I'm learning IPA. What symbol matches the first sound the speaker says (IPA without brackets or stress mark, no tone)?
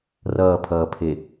r